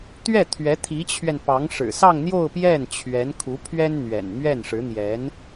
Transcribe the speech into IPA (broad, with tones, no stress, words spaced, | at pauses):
t̪ɥɛ˥˩t̪ʰɥɛ˧˥ t̪ʰi˧˥t͡ɕʰɥɛ˧npɑ˧˥ŋ ʂɻ̩˨˩sɑ˥˧ŋ n̪jo˥˧ʊ̯pjɛ˥˩n t͡ɕʰɥɛ˧˥n kʰu˧˥pʰɥɛ˥nn̪ɥɛ̰˨˩n mɥɛ˥˩nʂɻ̩˧˥n̪jɛ˧˥n